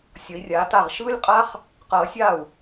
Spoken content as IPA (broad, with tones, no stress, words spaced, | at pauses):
sʲʌ˨˦i̯rʲaː˨˦ta˥˩ʁ ʃɯː˦˥lʲqʼa˦˥χ | qʌː˨˩˦ sʲa˥˩u̯